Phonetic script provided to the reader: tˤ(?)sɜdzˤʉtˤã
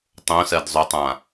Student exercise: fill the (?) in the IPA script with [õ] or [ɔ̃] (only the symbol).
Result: õ